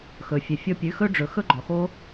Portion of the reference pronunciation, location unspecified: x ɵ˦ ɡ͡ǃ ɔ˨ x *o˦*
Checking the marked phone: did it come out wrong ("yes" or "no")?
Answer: no